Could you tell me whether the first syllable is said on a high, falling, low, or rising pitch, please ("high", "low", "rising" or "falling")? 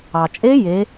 low